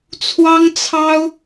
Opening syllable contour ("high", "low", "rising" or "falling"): high